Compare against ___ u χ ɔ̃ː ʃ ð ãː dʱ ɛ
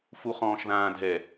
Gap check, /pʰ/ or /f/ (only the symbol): f